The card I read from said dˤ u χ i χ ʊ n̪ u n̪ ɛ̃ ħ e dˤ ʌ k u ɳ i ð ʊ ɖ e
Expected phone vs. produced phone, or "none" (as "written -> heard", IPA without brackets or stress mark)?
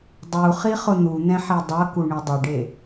ð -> dˤ